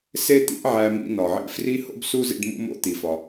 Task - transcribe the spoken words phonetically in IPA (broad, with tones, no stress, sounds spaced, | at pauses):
s e˥ t̪ ḭ˥ ʔ ʕ æ˧ m ḭ˧ n ɒ˩ ʕ ḭ˧ f r i˥ h o̰˥ b s u˥ z ḭ˧ ɖ m ṵ˧ m o̰˧ t̪ i˩ f ɒ˩